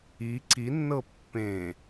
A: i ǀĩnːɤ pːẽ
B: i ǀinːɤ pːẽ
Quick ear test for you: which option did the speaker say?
B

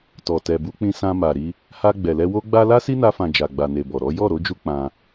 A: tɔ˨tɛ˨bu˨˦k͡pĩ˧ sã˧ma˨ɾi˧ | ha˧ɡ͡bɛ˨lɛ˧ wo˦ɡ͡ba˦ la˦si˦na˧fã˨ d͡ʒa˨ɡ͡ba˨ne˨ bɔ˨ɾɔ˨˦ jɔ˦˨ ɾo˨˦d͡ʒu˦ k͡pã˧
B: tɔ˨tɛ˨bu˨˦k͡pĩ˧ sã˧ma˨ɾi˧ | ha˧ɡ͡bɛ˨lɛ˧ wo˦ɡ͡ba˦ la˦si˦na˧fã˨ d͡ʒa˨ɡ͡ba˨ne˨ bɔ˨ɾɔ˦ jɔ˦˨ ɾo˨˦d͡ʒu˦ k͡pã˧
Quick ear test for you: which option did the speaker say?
A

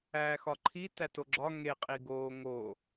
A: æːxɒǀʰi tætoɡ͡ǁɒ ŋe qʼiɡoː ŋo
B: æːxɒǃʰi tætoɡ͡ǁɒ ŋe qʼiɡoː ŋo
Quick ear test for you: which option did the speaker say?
B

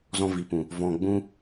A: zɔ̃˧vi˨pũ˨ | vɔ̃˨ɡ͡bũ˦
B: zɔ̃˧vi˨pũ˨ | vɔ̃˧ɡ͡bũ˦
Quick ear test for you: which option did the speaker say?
B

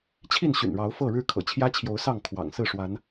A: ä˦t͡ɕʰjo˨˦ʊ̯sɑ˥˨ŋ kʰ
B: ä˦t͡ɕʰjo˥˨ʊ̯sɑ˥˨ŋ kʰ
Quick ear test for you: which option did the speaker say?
A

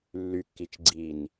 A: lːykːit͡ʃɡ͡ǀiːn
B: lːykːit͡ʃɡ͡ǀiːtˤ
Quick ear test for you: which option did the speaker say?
A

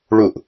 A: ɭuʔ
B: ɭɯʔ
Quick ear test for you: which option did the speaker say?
A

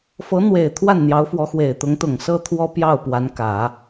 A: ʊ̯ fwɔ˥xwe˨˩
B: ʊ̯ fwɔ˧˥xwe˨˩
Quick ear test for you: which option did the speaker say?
B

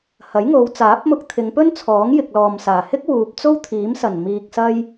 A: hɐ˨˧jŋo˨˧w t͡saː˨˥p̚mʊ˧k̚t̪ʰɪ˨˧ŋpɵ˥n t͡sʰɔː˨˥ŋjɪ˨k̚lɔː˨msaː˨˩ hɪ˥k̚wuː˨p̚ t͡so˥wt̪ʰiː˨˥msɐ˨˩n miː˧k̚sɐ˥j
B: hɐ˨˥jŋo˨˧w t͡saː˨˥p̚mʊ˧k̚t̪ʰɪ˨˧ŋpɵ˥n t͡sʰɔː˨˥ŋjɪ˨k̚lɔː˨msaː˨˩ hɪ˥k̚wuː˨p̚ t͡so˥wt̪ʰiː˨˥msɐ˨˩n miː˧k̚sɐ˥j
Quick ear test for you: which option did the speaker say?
B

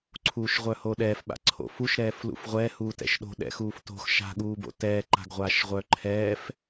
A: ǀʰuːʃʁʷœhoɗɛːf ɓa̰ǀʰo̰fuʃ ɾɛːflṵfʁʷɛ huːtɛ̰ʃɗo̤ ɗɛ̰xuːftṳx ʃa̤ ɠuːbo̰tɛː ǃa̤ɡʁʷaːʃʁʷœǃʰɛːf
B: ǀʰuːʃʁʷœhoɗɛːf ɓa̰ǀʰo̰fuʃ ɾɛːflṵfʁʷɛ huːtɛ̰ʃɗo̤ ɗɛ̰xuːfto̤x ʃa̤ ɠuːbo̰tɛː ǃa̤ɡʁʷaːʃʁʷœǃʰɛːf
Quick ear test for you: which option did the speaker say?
B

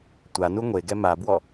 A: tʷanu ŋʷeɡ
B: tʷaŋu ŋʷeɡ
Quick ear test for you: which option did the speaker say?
A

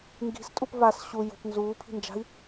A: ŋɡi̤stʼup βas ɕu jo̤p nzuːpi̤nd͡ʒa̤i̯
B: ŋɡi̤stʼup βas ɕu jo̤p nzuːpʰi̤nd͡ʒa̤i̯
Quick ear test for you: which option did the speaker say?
B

